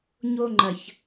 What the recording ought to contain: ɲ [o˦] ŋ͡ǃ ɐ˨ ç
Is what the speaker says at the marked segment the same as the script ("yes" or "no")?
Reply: yes